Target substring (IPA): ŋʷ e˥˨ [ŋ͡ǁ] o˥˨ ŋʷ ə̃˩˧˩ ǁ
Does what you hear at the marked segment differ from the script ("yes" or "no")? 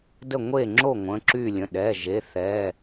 no